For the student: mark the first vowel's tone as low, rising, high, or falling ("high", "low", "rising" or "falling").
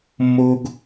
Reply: high